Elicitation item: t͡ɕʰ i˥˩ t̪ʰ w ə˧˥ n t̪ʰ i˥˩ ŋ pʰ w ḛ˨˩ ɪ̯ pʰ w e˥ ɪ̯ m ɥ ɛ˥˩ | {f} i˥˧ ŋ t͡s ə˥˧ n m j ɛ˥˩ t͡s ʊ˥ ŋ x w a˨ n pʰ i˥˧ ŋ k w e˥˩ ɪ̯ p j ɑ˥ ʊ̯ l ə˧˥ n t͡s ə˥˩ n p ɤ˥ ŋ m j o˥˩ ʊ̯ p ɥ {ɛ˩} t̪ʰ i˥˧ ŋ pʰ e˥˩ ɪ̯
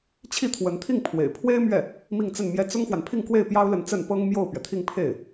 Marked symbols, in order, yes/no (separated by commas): no, yes